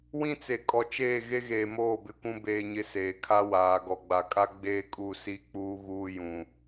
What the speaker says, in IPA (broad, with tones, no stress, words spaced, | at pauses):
wĩ˦t͡se˨ kʼɔ˨t͡ʃeː˦˨ɣe˦ ɣeː˨moː˦˨bɪ˨kʷũ˦ beː˦ɲɪ˦seː˨ kʰa˦waː˨ ɡɔ˨ɡ͡ba˨kʼa˦ ɡ͡beː˦kʼu˦˨ si˦k͡puː˦ ɣuː˦jũ˨